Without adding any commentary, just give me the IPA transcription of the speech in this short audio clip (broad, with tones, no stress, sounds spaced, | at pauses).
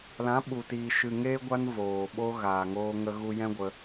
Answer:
l ã˨˦ ɓ u˨ t iː˨ ʃ ɨ˨ ŋ eː˧ ɡʷ a˧ n v oː˨ ɓ o˧ ɣ aː˨ ŋ oː˧ ŋ ə˧ ɣ u˧ j ɛ̃˦ ɡʷ ə˧